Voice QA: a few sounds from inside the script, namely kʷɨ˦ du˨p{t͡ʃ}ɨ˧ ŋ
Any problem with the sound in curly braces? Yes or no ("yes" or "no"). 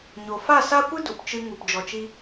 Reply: no